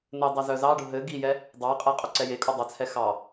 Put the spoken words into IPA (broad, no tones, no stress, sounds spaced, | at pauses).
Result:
n ɘ dˤ ɘ z œ z ɑ ɖ ʊ ɦ ɘ ɡ i j ɛ | dˤ ɑ qʼ e qʼ œ ǀ ɛ j e kʼ u dˤ œ t͡sʰ ɛ x ɑ